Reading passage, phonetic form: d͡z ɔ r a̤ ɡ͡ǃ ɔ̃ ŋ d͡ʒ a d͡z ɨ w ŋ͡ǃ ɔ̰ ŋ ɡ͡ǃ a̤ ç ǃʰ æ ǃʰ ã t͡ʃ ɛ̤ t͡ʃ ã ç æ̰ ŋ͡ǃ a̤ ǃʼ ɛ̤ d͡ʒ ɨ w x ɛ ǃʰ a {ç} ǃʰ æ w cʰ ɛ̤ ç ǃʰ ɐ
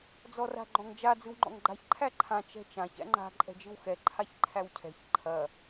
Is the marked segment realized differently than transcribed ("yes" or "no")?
no